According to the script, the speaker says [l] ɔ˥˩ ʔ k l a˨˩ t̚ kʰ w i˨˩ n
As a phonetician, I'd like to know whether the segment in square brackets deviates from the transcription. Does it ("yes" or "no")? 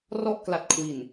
yes